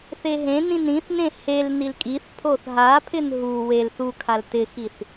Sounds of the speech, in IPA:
θ e ɦ ẽ n ĩ n ĩ θ n ẽ h e l n i l kʼ i θ pʰ o θ ɦ a pʰ ɪ n ɦ u w e l θ u kʰ a l t ɪ x i θ

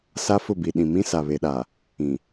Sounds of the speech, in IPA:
s a˦ f ʊ˦˨ b i˨ ɗ ĩ˨ m ĩ˦ s a˨ β e˨ ɗ a˨ | ĩ˨

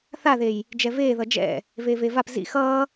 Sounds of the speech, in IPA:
θ a ð e j | d͡ʒ ɛ v eː ð ʌ d͡ʒ ɛ̰ | v eː v e v a p z ḭ x ʌː

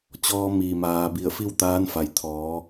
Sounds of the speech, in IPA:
t͡ɕ ɔː˧ m iː˩ m aː˩ b i˧˩ ə̯ f i˥˨ w t̪ aː˧˥ n f a˩ j t̪ʰ ɔː˩˧

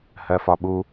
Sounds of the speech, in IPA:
h ɜ f ɒ ɓ u

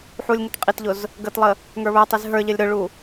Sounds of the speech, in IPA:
ħ u lʲ ŋ ə t qʼ i t ʎ ʊ z | ɡ ə t lˠ ə | ŋ ə˞ β ə˞ tˤ i z ɦ ə˞ ʎ ə lʲ ɾ ʊ ɭ u

